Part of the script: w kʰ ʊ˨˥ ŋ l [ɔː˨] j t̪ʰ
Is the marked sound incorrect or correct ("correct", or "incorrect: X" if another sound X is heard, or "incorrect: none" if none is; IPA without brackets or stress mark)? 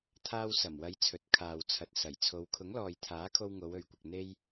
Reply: correct